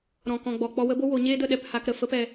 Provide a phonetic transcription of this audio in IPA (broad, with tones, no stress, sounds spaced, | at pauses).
ɾ ɔ̃˨ k ɔ̃˨ ɡ͡b ɔ˨ k͡p ɔ˧ w ə˦ b o˦ w o˨˦ ɲ eː˦ d ə˧ ɗ ɛ˦˨ p h a˧ k ɾ ə˨ f ə˦ p ɛ˧